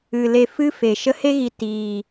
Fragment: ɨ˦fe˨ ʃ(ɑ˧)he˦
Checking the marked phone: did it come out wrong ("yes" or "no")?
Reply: yes